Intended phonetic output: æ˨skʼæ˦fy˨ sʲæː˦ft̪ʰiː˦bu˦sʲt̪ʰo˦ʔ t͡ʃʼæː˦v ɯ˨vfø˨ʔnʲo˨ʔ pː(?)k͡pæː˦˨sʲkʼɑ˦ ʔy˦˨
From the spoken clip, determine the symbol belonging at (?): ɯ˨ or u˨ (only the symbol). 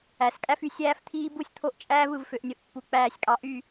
u˨